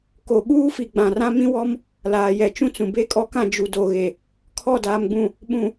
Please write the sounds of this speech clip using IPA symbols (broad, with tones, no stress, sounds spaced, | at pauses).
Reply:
k o˨ ɓ uː˦ f i˨ ɡ͡b ã˨ r ã˦ m ĩ˦ w ɔ˦ m | l aː˨ j ɛ˨ t͡ʃ ũ˦ t͡s ũ˨ b e˦ kʼ ɔ˦ k ã˦˨ d͡ʒ u˨ d o˨ ɣ e˨ | kʰ ɔ˦˨ d aː˨ m ɡ͡b ũ˨ | ɓ ũ˨